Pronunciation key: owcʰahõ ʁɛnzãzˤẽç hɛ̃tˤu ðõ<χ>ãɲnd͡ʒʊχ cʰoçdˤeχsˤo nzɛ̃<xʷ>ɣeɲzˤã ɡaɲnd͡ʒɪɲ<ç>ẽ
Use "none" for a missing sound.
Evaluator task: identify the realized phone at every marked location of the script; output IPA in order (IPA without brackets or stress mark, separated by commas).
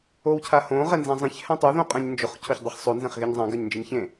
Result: qʼ, χ, ç